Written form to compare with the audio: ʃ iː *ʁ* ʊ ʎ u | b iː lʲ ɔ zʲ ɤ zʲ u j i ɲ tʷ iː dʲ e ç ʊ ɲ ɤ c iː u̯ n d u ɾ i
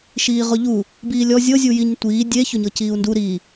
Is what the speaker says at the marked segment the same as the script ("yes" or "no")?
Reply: yes